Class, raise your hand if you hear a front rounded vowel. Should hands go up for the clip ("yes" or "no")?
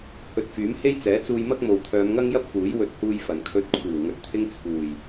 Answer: yes